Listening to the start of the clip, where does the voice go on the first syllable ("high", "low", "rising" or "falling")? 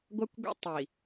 high